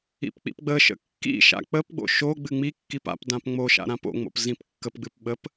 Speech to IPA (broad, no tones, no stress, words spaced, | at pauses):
ḭpk͡pḭpɡ͡bəʃə̰ kːḭʃa̰ k͡pəpɡ͡bo̰ ʃo ɡ͡bɨŋ͡mikːip a̰p dãpŋ͡moʃa̰ ɾãpo̰ŋ͡mo̰p zĩpkːəpɡ͡bɨp ɓəp